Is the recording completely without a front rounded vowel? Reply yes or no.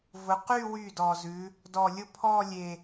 no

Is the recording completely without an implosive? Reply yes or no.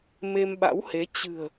no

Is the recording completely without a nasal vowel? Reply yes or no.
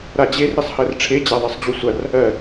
yes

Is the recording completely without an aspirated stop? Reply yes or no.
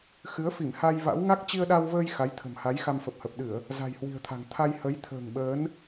no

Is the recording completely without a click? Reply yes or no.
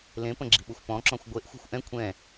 no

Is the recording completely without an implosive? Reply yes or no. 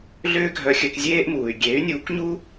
yes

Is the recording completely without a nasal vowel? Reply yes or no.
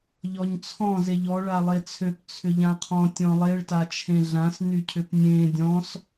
no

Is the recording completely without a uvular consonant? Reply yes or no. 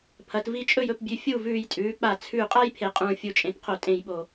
no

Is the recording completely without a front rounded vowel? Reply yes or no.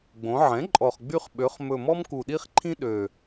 no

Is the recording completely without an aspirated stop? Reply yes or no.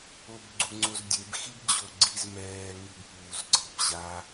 yes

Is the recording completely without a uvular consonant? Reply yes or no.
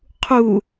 no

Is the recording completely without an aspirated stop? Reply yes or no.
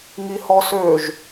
yes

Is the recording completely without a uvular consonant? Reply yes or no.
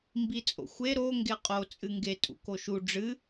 no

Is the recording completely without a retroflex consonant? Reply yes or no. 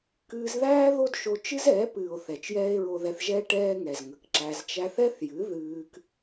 no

